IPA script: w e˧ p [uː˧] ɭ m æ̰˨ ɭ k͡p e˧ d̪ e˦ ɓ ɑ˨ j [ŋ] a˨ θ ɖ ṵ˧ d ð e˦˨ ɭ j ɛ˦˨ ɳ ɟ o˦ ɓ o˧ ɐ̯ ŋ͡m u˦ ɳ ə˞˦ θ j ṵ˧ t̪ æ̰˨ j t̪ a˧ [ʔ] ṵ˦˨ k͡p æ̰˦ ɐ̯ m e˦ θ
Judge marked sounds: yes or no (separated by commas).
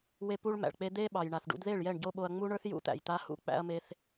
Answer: no, no, no